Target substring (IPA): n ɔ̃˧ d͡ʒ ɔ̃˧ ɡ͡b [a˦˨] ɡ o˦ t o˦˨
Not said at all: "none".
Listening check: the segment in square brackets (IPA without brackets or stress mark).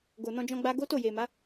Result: a˦